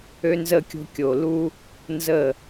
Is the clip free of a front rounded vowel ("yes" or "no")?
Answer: no